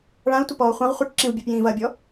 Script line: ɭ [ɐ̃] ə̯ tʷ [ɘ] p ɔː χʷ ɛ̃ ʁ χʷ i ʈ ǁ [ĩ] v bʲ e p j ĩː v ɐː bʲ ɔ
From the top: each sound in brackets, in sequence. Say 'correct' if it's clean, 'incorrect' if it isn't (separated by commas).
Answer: incorrect, correct, correct